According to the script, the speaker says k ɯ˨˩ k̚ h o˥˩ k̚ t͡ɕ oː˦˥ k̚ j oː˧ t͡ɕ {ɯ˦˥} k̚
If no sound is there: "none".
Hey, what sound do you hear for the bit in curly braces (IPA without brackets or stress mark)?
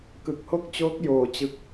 ɯ˦˥